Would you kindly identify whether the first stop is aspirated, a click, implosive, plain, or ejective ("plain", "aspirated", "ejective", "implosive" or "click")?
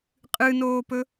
ejective